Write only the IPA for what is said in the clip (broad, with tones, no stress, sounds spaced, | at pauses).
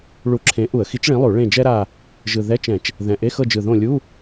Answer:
ɭ u˧˩˧ ǁʰ ẽ˨˥ ʔ u˧˩˧ ə̯ x i˨˥ t͡ʃ ɭ ĩ˨˥ lˠ u˧˩˧ ɭ ẽ˦˨ d͡ʒ ɛ˥ ɾ a˦˨ | ʒ ɯ˨˩ ð ɛ˧˥˧ t͡ʃ ɛ̃˧˩˧ t͡ʃ | ð ɛ̃˨˩ ʔ e˧˥˧ x ɤ˦˨ d͡ʒ ɯ˨˩ ð õ˦˨ lʲ u˧˥˧